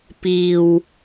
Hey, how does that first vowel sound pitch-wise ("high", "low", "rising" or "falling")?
low